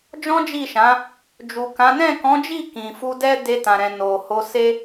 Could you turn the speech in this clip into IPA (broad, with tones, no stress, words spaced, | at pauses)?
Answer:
d͡ʒɔ̃˦d͡ʒi˦˨ʃã˨˦ | d͡ʒu˨kã˨˦ nɛ̃˦˨kɔ̃˨˦d͡ʒi˦˨ kĩ˨fu˧dɛ˦ de˧tã˨ɾɛ̃˨ no˨ ho˧se˦